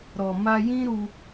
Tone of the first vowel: low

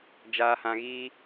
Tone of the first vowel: low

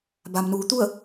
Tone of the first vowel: low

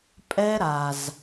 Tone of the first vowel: high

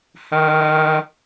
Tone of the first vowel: high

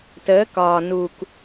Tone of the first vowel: rising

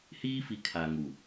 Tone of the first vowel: high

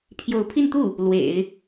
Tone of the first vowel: rising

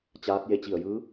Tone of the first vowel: rising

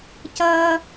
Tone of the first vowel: high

